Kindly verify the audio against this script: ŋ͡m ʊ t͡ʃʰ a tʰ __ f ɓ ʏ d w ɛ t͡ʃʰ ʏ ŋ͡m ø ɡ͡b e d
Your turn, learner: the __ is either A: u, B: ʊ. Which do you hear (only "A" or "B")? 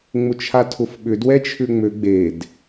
B